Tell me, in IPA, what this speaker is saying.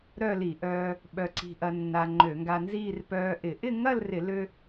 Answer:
ɾ œ˥˧ l i˧˩˧ ʔ œː˧ | ɓ œ˧ ǀ i̤˧ ʔ ɐ˧ nː a˧ ŋ͡ǃ ø˧˩˧ ŋ ɡ a˧ n z iː˥˧ r p œː˧ ʔ ɪ˧˩˧ ʔ ɪ˥˧ ŋ ɐ˥˧ l r ɪ˧˩˧ l ø˧

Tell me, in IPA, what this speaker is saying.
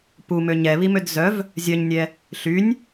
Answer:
p u m ø ɲ ɛ β i m ø d z œ v | zʲ œ ɲ nʲ ɛ | ɬ y nʲ

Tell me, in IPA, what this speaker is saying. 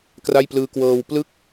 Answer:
k r a˥˩ j p l ɯː˧ k w ɤː˧ w p l ɯ˥˩ k̚

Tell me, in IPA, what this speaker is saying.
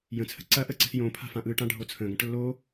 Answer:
j ə̃ t͡sʰ ə̤ ǀ ɐ ʔ ə ǀ ə̤ s j õ pʰ a̤ f ã ʔ ɯ ʈ ã ɖʱ o t͡sʰ ə̃ ɡ ɐ̃ ʈ lː o

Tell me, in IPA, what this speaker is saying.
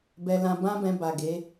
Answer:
b ɛ˧ l ã˧ b ã˦ b ɛ̃˧ b a˨ ɡ e˨˦

